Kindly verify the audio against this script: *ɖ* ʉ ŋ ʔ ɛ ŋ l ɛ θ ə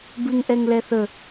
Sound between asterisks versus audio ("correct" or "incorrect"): incorrect